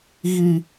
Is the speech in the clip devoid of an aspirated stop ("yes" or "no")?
yes